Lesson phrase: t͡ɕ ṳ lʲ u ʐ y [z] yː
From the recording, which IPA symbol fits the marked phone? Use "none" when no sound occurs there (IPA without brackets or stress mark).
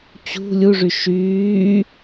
ʃ